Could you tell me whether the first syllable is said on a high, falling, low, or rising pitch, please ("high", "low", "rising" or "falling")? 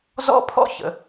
high